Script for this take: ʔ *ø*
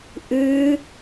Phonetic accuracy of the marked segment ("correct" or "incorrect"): incorrect